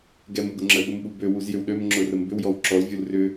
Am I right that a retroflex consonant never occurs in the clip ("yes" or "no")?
yes